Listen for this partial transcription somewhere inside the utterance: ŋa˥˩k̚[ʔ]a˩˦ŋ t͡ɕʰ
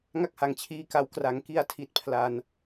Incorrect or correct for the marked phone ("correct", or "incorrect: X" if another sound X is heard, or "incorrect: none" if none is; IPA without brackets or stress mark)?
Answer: incorrect: h